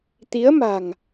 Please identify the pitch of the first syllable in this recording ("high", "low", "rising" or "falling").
rising